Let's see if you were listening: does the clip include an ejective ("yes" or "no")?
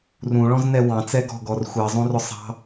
no